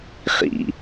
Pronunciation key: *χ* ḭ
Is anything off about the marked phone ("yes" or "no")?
no